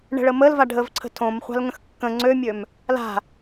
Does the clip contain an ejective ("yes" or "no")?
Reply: no